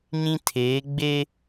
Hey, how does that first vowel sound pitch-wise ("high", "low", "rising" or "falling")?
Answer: high